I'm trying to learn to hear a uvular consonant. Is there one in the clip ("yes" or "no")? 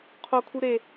yes